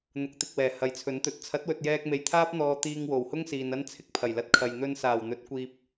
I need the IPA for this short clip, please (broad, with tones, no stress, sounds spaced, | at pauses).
n̪ ʊ˨˥ k̚ t̪ ɪ˨ k̚ w ɛː˨˩ h ɐ˨ j t͡sʰ ɵ˨˥ n t̪ ɵ˨˥ t̚ t͡sʰ ɐ˨˥ t̚ w ɵ˨ t̚ j ɛː˧ k̚ m e˨ j t̪ʰ aː˥ p̚ n̪ ɔː˧ t̪ iː˧ ŋ w o˨˩ w h ʊ˥ ŋ s iː˨ n ɐ˥ n t͡sʰ ɪ˧ k̚ pʰ ɐ˨˩ j l ɐ˧ t̚ kʰ ɐ˨ j n̪ ɵ˧ n s aː˨˩ w n̪ ɵ˨˥ t̚ kʷ iː˧ p̚